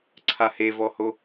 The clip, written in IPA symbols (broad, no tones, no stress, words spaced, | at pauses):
ǀʰahevɔho